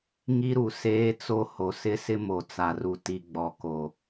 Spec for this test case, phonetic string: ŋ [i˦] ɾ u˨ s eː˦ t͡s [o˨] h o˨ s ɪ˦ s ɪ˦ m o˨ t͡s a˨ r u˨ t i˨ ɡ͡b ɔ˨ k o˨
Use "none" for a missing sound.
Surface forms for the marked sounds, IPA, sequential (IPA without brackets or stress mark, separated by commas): i˦, o˦